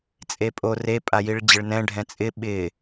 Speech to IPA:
t͡sʼ e pʼ o r e pʼ a j i ɭ d͡ʑ ɪ ɭ n ɛ̃ ɖʱ ɛ̃ t͡sʼ ɪ ɓ ɪ

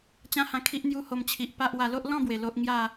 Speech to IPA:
t͡ɕ ã˦ h ã˧ kʰ i˦ ʔ n̪ j u˦ h o˧ m t͡ɕʰ i˨ ʔ p a˦ ʔ w a˧ l o˦ ʔ l ɔ̃˥˧ b w e˨˩ l o˦ ʔ ŋ j a˥˧

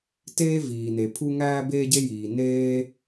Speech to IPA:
t eː˥ v iː˩ n e˩ pʰ u˥ ŋ æː˥ b eː˥ ɟ e˥ j iː˩ n eː˥

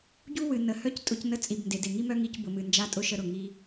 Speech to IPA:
ɟ u˥ w ɨ˩ n ə˩ h œ˥ c tʼ ʊ˧ c n ə˧ t͡sʼ i˩ b n d e˩ d e˩ ŋ i˥ m œ˥ ŋ i˧ c b ʊ˩ m ɨ˩ n d͡ʒ a˧ tʼ ʊ˥ ʃ ə˧ ɾ ʊ˩ ŋ i˧

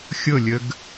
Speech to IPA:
xʲ ɤ lʲ ə ɡ

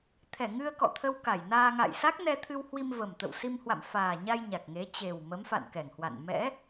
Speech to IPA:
t̪ʰ ɛ˧˩ ŋ ɨ˧ ə̯ k ɔ̰˧˨ t̪ʰ ə˧ w k a˧˩ j n aː˧ ŋ a̰˧˨ j s a˦˥ k̚ n ɛ˧ t̪ʰ ɨ˧ w h w i˧ m v ə˨˩ m t̪ ə̰˧˨ w s i˧ m h w a̰˧˨ m f aː˨˩ ɲ a˧ j ɲ a˨˩ k̚ ŋ e˨˦ t͡ɕ e˨˩ w m ə˨˦ m f a̰˧˨ n k ɛ˧˩ ŋ h w a̰˧˨ n m ɛ̰˧˥

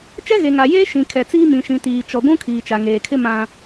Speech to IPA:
t͡ʃ ɛ˦ ɣ e˨ ŋ a˨ j eː˦ ʃ ĩ˨ kʰ ɛ˨ t͡s iː˦ m ĩ˨ ʃ ĩ˨ t iː˨ t͡ʃ ɔ˨ ɡʷ ũ˦ kʰ iː˨ t͡ʃ a˨ ŋ eː˨ kʰ ɪ˦ m ã˦

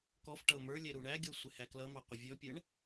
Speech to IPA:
k ɔ f ʈ ʌ ʊ̯ m ə˞ lʲ ɛ ɾ u ɳ æ ɡʲ ɔ sʷ ɪ h æ k l ʌ m ɑ qʷ ɪ vʲ ɔ pʲ ɛ ɳ

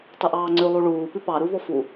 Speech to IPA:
tˤ ʉ ʔ ɑː ŋ͡ǀ ʉ lˠ u ɭ uː p ʉ p ɑ ɾ u v ɔ f u

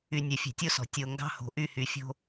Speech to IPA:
y˨ nʲ ɛ˨ fʲ ɛ̤˨ tʲ o˦ s ɔ̤˨ tʲ o˨ ŋ ɡ ɑ̤˦ h o̤˨ ʔ y˦˨ h y˨ fʲ o̤˦

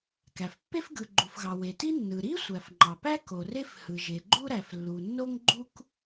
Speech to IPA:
k æ˩ f pː e˥ f ɡ ɯ˩ ɡ͡ǃ u˩ f ɣ ɑ˩ w e˩ t i˥ nː ɯ˩ ɾ i˥ sʷ æ˩ f ŋ͡ǃ ɑ˩ p æ˥ k o˩ r e˥ f h ɯ˩ ʒ e˩ ɡ͡ǃ u˥ ɾ æ˩ f lː u˩ nː o˥ ŋ ɡ͡ǃ u˥ k

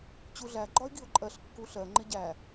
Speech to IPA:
t͡ɕ u ɮ æ ɡ͡ǃ ɒ ɪ̯ ɡ i ʊ̯ ǃʼ ɜ ɬ kː u ɬ ɜ ŋ͡ǃ ɪ ɟ æ

